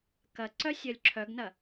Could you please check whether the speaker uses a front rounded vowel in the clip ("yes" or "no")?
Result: yes